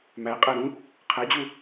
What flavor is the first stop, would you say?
ejective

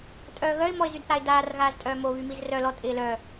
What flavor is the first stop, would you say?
ejective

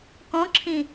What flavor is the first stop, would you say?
plain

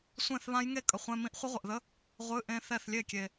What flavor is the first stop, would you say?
ejective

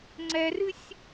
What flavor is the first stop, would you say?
click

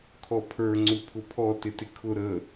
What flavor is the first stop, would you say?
aspirated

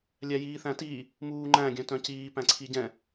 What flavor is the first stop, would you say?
plain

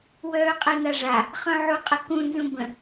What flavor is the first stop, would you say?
ejective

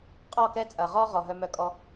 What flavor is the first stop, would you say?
ejective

